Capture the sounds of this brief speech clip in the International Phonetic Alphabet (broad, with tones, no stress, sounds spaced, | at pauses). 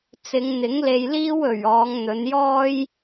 t͡s ɪ˨˧ ŋ n̪ ɪ˨˥ ŋ l e˧ j l iː˥ w ɵ˨˩ ɥ ɔː˨˧ ŋ n̪ ɵ˨˧ n j ɔː˥ j